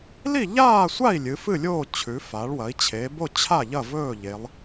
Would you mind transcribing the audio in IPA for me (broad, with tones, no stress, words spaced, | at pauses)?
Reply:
li˥˨ʎaː˥˨sʷa˥˨i̯ lʲɨ˩˧fɨ˥˨lʲoː˥˨ t͡ɕʰʉ˩˧fa˩˧ɭwɐ˩˧i̯ t͡ɕʰe˩˧bo˥˨t͡ɕʰa˥˨ʎɐ˥˨ vɵː˥˨ʎe˩˧lˠ